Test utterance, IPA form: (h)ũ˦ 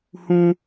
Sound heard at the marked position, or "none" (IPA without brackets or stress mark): h